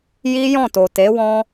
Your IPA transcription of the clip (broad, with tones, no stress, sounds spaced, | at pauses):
j i˦ j ɔ̃˦˨ t o˨ t e˨˦ w ɔ̃˦